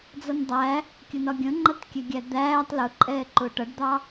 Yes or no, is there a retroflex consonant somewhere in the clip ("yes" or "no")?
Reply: yes